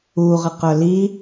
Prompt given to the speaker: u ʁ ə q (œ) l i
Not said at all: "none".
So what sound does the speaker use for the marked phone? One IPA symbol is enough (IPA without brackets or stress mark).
œ